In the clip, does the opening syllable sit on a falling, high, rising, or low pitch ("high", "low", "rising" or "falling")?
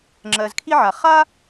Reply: low